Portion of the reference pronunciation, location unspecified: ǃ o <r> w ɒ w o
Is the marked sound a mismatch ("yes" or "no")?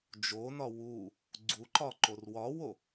no